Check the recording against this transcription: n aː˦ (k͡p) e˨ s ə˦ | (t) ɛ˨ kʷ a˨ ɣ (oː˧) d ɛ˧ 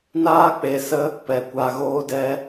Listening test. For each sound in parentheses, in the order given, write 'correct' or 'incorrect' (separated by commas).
correct, incorrect, correct